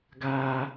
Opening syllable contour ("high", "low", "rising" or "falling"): high